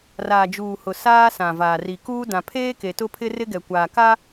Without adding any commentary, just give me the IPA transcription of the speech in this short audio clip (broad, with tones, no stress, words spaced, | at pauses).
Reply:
raː˨d͡ʒuː˨hʊ˨ saː˦sã˨vaː˨ ri˨ kuː˦ dã˨pʰeː˦ke˨ tʊ˦pʰɪ˦rɪ˦ɡɛ˨ kʷaː˨ka˦